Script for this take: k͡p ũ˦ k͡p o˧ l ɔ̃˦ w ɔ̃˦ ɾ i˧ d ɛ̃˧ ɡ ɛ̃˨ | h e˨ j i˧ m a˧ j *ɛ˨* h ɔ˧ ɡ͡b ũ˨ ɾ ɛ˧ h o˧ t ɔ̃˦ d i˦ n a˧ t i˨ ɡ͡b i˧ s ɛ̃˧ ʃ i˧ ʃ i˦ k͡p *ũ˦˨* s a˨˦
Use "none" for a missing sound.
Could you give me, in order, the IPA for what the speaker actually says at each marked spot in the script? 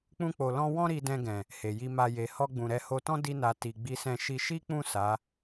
e˨, ũ˦˨

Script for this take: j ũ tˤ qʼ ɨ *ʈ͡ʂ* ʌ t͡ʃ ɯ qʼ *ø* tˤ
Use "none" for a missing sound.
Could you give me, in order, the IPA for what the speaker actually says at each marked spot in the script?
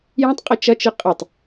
t͡ʃ, ə

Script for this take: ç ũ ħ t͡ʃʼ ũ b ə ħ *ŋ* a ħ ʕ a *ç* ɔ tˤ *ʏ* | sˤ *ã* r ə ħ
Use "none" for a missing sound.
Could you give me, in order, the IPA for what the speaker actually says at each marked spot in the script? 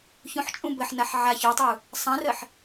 n, ç, u, ã

